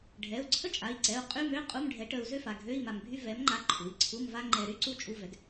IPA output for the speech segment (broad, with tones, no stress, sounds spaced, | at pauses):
ɖʱ ɛ˩˧˩ u̯ ǀʰ ə˥ t͡ʃʼ a˩˧˩ i̯ ǀ ɛ˩˧˩ u̯ qʼ y˧˥˧ m ø˧˥˧ qʼ u˧˥˧ m ɖʱ ɛ˨˥ ʈ ə˧ u̯ z ø˥ f a˩˧˩ ɡʱ ø˧˥˧ i̯ m a˧ m bʱ y˥ v ɛ˨˥ m ŋ͡ǃ a˧ ǃʰ u˩˧˩ i̯ ǀʰ u˧˥˧ m v a˥ ŋ͡ǃ ɛ˧ ɾ y˥ ǀ u˥ t͡ʃʼ u˧˥˧ v ɛ˨˥ ɡ